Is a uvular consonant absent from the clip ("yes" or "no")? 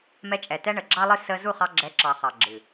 no